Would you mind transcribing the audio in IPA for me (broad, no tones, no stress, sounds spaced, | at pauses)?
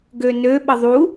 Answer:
ɡ ø n ø ɓ ə ðˤ u